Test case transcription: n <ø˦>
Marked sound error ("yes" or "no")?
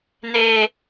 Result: yes